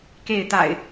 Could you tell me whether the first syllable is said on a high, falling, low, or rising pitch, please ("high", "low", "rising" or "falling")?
falling